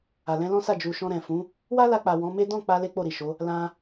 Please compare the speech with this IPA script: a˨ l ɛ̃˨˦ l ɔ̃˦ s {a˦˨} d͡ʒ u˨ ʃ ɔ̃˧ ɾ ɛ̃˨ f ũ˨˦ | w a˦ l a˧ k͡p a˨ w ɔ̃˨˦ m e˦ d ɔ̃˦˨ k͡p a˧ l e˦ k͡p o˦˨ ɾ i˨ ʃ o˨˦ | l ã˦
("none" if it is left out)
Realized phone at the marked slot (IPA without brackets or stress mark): a˦˨